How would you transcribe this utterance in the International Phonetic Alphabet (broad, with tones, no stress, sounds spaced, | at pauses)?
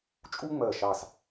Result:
t͡ʃʼ u˥ ŋ͡m ɜ˧˩ ʃ ɑ˧˩ s